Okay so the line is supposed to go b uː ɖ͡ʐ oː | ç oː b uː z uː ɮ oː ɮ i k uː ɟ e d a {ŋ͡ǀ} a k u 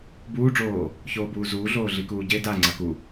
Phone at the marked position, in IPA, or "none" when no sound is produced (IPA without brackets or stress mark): ŋ͡ǀ